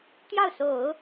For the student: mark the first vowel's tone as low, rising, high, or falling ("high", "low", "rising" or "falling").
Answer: falling